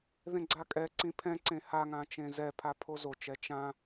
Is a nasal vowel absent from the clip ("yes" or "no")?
no